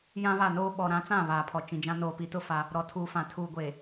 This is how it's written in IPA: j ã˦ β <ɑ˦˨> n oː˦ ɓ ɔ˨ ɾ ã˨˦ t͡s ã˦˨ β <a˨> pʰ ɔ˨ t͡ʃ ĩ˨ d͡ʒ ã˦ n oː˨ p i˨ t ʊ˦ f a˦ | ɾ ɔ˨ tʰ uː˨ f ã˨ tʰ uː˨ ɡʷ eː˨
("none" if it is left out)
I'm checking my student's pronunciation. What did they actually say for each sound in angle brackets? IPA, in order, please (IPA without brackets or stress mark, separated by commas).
a˦˨, aː˨